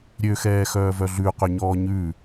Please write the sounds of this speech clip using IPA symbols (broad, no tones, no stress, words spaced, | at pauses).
ɾʲøxɛːxœːvœ ɮʉqøɲɔː ɲʉ